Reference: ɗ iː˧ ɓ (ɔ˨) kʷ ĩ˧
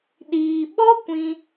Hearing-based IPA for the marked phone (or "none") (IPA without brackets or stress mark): ɔ˦